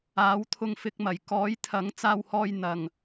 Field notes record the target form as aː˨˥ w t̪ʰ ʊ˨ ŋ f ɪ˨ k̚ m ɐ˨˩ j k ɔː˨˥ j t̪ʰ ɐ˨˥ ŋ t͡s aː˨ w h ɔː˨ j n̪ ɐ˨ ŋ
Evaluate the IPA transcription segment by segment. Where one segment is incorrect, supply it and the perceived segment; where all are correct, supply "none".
none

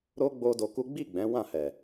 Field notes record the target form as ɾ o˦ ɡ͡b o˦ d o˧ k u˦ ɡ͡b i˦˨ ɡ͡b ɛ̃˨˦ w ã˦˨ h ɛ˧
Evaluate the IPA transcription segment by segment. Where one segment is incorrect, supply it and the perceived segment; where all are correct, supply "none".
ɛ˧ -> ɛ˨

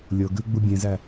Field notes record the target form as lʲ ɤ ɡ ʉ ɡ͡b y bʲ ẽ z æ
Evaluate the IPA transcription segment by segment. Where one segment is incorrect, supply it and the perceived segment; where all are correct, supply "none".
y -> u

